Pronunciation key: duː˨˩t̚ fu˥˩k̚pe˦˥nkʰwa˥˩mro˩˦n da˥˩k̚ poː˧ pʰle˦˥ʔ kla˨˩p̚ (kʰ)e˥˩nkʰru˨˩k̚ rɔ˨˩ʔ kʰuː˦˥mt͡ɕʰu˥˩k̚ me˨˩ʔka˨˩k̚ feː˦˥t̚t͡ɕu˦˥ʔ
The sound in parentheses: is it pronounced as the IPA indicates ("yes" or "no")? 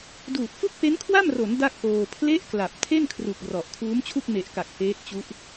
no